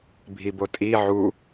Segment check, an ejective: present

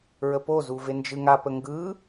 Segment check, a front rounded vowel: absent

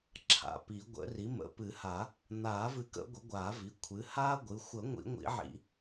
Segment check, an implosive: absent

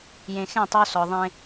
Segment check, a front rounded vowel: absent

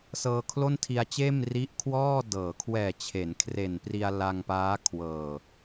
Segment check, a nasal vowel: absent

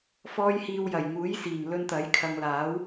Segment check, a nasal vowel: absent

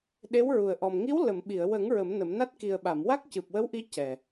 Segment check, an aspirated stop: absent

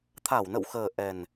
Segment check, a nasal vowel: absent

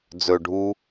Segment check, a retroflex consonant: present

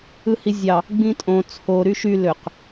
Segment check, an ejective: present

